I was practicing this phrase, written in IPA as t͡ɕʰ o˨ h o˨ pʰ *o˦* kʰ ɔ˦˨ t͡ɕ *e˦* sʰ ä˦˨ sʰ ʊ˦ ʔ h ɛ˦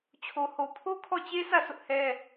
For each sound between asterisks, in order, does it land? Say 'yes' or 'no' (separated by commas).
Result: yes, yes